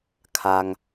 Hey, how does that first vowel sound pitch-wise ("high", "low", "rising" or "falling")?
low